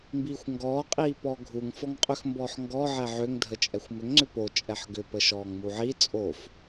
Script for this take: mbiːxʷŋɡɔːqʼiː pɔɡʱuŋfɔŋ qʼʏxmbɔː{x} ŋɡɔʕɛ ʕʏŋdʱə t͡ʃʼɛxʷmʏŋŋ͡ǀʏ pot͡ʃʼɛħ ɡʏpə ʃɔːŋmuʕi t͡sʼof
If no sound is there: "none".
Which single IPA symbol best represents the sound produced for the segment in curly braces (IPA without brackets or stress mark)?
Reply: ħ